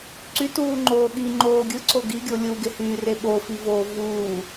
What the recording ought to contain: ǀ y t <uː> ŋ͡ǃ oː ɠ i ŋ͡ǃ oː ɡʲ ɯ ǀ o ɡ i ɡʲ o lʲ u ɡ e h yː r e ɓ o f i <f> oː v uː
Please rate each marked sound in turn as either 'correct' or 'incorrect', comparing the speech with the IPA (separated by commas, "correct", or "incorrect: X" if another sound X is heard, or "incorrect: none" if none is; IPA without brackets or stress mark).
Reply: correct, incorrect: v